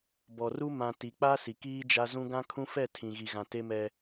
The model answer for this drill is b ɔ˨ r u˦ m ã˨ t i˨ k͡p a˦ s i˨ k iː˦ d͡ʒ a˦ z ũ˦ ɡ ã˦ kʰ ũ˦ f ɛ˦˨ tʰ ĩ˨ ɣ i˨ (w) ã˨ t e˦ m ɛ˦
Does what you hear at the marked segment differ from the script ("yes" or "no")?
yes